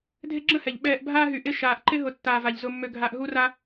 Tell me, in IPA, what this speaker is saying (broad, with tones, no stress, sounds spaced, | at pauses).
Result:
dʱ e˦ ɡ͡ǁ ə̃˥ h ɛ˩ ʎ ɓ ɛː˨ ʔ bʱ aː˥ ɦ y˨ ʔ ɪ˦ ʃ aː˨ ʔ ǃ ɪ˦ ɦ ʊ˨ tː aː˨ v a˩ ʎ z ʊ˨ mː ø˨ ɡʱ a˨ ʔ ɦ u˦ r a˦